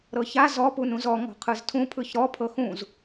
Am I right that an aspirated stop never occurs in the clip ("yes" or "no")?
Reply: no